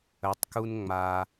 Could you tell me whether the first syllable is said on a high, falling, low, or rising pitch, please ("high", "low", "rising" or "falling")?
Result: rising